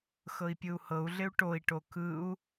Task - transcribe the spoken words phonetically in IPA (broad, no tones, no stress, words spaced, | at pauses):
xɤi̯pʲɯu̯hɤu̯ɮɪu̯ ʈoi̯ʈo kɯu̯